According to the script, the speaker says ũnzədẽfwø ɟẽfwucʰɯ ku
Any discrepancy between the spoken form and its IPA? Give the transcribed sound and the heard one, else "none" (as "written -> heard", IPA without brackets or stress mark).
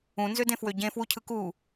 ə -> ø